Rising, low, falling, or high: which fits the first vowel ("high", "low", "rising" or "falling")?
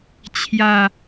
low